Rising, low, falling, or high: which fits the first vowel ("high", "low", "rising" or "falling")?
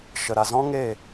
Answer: low